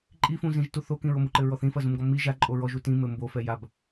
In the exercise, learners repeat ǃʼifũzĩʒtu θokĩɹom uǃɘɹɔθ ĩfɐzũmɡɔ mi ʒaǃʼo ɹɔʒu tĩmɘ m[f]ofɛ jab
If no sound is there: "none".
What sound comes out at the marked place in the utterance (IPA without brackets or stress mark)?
b